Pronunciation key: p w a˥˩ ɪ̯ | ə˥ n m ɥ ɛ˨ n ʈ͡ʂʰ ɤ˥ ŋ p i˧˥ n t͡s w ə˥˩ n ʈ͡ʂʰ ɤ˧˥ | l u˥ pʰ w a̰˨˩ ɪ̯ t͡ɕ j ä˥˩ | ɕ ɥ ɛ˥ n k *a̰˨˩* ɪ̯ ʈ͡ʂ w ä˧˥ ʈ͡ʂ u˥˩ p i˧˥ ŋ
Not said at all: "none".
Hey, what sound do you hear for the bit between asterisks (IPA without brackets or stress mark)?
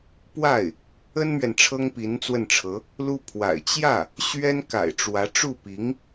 a̰˨˩